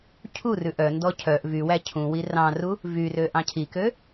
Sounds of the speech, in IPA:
cʰ u r ʉ ʔ œ n d ɔ cʰ œ ʔ v y w æ cʰ ũ w i r ɑ̃ r u | v y r ø ʔ ɑ̃ cʰ i k ø

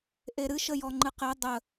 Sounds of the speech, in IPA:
ʔ e ɾ ɨ ʃ ə j ɔ ŋ͡ǃ ɨ q e dˤ ə

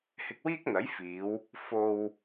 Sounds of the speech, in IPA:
h ɪ˧ k̚ w iː˥ k̚ n̪ ɐ˨˥ j f iː˨˧ w | f o˧ w

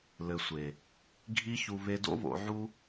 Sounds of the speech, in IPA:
l ɘ˨ sʷ e˨ | ɡʱ i˧ ç u˨ β e˧ d o̰˦ β o̰˧ ʕ u˦

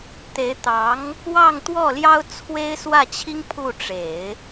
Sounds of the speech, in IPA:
t̪ e˧˥ ɪ̯ t̪ ɑ˧˥ ŋ | w ɑ˥˧ ŋ t̪ w ɔ˥˩ l j ɑ˥ ʊ̯ t͡sʰ w e˥ ɪ̯ s w ä˥˩ t͡ɕʰ i˥ ŋ pʰ u˥˩ ʈ͡ʂ e˨˩˦ ɪ̯

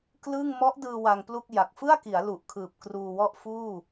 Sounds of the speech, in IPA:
k l ɯ˥˩ ŋ m ɔ˦˥ ʔ d ɯː˧ w a˧ ŋ p l u˥˩ k̚ j a˨˩ k̚ f ɯ˥˩ a̯ k i˩˦ a̯ l u˨˩ ʔ kʰ ɯː˨˩ p̚ k r uː˧ w ɔ˥˩ ʔ f uː˥˩

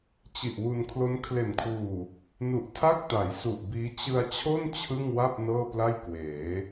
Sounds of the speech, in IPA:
t͡ɕ i˨˩ ʔ w u˧ n kʰ l o˦˥ n kʰ l e˨˩ n kʰ w uː˨˩ | n u˨˩ ʔ tʰ a˥˩ k̚ t a˩˦ j s u˨˩ ʔ b iː˦˥ t͡ɕ ɯ˧ a̯ t͡ɕʰ o˥˩ n t͡ɕʰ ɯ˥˩ ŋ w a˥˩ p̚ n ɤː˥˩ p l a˥˩ j k w eː˩˦

